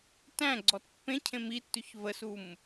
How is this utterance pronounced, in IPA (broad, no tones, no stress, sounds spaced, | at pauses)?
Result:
t æ̃ ɡ͡ǀ ɔ t pː ẽ cʰ ẽ m i tː ʉ ç v ə s u m